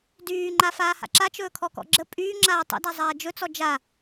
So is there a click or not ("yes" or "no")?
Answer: yes